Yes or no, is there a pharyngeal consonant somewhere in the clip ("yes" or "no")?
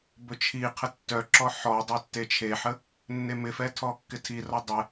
yes